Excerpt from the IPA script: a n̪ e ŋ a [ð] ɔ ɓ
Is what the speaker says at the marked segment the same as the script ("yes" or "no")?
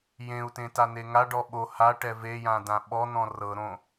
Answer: no